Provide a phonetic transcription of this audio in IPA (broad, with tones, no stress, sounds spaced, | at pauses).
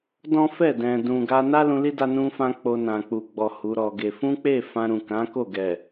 d ɔ̃˦ f ɛ˦˨ d ɛ̃˨ d ũ˨ ɡ a˧ n a˦ l ũ˧ l i˦ d a˧ n ũ˧ f ã˧ k͡p o˧ n ã˨ k͡p u˨ ɡ͡b ɔ˨ h u˨˦ ɾ ɔ˧ ɡ e˧ f ũ˦ k͡p e˦˨ f ã˧ ɾ ũ˨ k ã˨˦ k o˦˨ ɡ ɛ˨